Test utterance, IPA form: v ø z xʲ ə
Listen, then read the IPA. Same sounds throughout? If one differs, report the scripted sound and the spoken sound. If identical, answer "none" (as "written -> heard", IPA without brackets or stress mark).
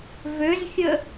none